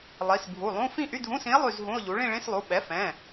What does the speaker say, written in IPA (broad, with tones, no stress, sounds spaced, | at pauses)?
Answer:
lˠ i˩˧˩ s bʱ u˩˧˩ lˠ ũ˧˥˧ f ĩ˥˧ ʔ y˧˥˧ dʱ ũ˧˥˧ s ĩ˧˥ e̯ lˠ y˥˧ z ɦ ũ˧˥˧ o̯ ʎ u˩˥ ɭ ĩ˥˧ ɭ ĩ˧˥˧ s lˠ u˩˧˩ ɓ ɛ˩˥ f ɛ̃˩˧˩